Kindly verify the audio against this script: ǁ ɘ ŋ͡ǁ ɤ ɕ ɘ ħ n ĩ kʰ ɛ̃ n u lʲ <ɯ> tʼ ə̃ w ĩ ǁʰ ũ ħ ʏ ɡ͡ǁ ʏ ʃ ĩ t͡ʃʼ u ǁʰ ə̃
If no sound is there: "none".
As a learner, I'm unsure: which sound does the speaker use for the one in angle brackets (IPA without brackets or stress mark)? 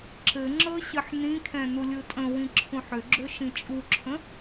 ɯ